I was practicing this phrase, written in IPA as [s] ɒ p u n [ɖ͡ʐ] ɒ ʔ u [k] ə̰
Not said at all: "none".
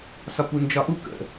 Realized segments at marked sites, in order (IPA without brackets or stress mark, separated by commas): s, d͡ʒ, k